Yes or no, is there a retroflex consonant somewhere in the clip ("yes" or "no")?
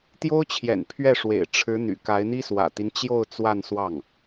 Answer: yes